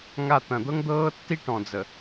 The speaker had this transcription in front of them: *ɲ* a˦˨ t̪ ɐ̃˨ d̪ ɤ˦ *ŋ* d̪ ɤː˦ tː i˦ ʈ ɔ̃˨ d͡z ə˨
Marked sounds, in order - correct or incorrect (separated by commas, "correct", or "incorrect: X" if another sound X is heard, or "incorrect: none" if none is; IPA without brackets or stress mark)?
incorrect: ŋ, correct